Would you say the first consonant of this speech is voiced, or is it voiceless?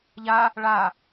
voiced